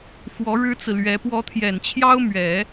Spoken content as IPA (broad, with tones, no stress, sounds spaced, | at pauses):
x w ɔ˧˥ ɻ ɻ̩˥ t͡s ɹ̩˨ l ɥ ɛ˧˥ p w ɔ˧˥ t̪ʰ j ɛ˨˩ n t͡ɕʰ j ɑ˥ ʊ̯ m ɥ ɛ˨˩˦